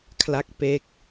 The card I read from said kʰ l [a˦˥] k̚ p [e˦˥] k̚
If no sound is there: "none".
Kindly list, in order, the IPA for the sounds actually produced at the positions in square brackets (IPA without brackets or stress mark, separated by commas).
a˦˥, e˦˥